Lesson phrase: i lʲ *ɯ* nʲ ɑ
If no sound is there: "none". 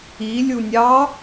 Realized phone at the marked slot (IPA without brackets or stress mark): u